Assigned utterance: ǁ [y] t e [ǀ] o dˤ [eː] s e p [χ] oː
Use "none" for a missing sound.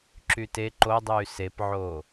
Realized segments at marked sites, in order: y, ǃ, yː, ʕ

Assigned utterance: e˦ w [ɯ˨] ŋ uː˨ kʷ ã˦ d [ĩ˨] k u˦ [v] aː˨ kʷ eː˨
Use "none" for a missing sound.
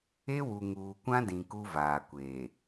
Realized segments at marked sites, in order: u˨, ĩ˨, v

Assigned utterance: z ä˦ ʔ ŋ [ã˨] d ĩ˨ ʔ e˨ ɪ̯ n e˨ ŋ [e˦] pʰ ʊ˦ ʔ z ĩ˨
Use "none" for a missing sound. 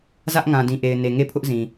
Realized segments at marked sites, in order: ã˨, e˦˨

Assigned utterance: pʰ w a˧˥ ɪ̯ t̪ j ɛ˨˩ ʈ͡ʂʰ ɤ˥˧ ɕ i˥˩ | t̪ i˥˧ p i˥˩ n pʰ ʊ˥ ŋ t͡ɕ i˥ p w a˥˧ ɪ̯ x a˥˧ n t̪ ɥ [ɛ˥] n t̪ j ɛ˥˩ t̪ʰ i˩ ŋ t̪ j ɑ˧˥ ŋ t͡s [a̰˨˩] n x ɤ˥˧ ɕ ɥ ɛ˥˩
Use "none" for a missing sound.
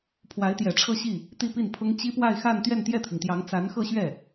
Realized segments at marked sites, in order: ɛ˥˧, a˧˥

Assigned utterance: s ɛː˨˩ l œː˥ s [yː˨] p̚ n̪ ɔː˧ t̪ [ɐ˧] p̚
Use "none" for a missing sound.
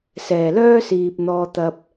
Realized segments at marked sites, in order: iː˨, ɐ˧

